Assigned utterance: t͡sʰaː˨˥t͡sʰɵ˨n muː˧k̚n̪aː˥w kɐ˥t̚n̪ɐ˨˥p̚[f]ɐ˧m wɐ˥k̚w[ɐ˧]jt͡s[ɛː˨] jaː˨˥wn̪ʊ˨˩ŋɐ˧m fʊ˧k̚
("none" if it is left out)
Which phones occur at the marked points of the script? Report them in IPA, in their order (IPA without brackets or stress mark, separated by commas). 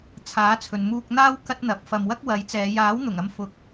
f, ɐ˨˥, ɛː˨˧